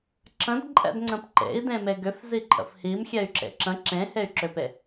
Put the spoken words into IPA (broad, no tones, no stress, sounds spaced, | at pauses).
ǁ ə̃ d ǃʼ ɛ̰ d ŋ͡ǀ ə̃ p ǃ ḛ i̯ d ẽ m e ɡ ʏ f z i ǃʼ ə̰ f h i m xʲ ɛ y̯ ǁ ḛ ǁ ə̃ ǁ ẽ h e y̯ ǁ ʏ p e